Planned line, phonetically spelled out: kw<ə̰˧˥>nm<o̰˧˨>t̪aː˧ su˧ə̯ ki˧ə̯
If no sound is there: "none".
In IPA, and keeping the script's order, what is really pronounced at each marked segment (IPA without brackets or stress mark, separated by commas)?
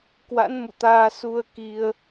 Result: a̰˧˥, ṵ˧˨